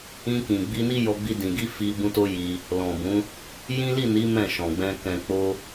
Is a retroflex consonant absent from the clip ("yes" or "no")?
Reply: yes